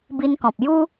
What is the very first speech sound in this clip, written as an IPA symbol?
b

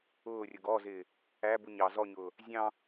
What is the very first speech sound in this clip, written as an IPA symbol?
ʊː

